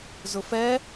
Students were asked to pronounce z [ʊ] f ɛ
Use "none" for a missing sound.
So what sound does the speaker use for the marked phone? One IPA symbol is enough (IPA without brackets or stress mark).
ʊ